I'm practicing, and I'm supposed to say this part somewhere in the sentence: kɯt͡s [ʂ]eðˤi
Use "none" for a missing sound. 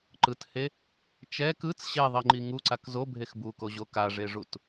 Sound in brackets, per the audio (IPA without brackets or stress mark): ɕ